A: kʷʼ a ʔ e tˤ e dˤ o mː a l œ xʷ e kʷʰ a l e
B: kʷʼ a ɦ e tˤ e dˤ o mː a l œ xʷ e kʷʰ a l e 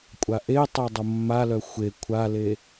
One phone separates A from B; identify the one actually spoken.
A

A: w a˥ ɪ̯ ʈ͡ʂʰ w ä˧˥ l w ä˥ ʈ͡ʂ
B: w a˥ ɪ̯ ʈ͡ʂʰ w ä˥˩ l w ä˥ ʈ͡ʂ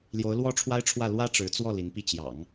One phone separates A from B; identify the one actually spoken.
B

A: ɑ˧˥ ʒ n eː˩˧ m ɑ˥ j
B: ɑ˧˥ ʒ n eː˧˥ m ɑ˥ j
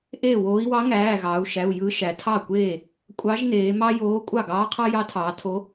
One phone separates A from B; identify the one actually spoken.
A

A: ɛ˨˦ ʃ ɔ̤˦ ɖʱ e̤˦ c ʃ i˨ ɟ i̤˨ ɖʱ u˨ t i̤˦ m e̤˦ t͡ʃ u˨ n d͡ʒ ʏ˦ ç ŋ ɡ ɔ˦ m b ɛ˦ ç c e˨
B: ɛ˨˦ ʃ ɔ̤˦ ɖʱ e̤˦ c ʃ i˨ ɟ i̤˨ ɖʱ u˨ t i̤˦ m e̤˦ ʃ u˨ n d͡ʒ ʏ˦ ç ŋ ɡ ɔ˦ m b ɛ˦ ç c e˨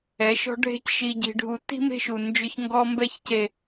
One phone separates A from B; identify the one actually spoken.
B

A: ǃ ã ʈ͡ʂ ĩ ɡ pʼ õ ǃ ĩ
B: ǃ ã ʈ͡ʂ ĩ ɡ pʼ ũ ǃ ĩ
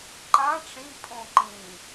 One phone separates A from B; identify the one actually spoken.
A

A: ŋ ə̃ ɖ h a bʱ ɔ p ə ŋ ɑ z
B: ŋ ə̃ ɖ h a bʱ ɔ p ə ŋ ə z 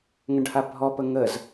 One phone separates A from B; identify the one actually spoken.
B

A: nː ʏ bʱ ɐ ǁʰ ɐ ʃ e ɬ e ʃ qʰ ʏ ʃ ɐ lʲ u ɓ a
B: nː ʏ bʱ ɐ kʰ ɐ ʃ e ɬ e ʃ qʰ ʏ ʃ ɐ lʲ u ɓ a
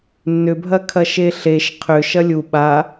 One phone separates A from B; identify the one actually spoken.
B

